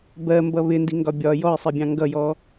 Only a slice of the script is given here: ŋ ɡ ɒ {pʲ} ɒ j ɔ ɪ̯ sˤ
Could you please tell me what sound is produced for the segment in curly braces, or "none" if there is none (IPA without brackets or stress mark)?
bʲ